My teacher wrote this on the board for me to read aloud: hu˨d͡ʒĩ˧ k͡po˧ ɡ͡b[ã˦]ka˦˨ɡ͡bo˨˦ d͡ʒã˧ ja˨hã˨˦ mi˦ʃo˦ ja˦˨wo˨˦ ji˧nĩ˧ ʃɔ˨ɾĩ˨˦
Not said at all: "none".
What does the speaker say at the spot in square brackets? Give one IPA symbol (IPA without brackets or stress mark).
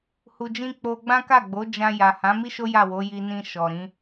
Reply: ã˦